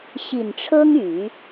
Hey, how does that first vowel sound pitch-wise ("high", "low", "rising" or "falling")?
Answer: low